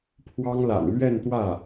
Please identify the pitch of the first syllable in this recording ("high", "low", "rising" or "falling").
high